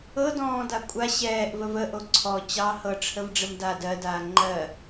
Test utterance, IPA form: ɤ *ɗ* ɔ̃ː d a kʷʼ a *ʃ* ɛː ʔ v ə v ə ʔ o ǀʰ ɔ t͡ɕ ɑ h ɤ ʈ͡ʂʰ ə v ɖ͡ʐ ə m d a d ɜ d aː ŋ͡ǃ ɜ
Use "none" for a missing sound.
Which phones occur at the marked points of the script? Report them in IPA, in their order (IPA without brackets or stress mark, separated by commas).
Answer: d, ɕ